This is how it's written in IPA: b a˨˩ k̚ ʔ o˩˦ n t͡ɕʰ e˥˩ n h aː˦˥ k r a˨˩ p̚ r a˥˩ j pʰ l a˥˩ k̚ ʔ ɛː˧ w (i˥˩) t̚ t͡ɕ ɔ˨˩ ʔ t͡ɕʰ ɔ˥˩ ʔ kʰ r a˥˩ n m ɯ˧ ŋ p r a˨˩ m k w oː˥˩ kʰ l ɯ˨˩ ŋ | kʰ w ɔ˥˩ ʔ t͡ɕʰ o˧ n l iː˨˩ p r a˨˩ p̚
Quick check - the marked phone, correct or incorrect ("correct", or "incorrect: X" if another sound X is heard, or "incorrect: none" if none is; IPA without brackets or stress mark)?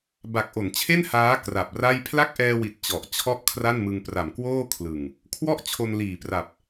incorrect: i˨˩